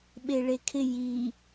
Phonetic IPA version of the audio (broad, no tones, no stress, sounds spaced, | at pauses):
ɓ e ɭ e kʰ ɪ j i